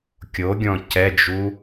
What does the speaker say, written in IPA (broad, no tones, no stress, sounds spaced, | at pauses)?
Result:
kʲ o ɡʲ ɔ̃ c ɛ d͡ʒ u